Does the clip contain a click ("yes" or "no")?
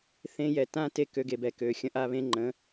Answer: yes